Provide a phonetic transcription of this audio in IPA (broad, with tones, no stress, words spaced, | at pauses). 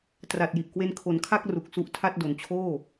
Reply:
tra˨˩t̚ji˨˩ʔ kwe˧nkʰo˨˩nkʰa˥˩k̚ ru˨˩k̚su˦˥ʔtʰa˥˩t̚ do˩˦nt͡ɕʰoː˥˩